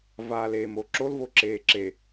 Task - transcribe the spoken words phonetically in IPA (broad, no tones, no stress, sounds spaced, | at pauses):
v aː l eː m o ǁ o l v o ǁ eː ǁ e